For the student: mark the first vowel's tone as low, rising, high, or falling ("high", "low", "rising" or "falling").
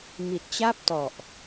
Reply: low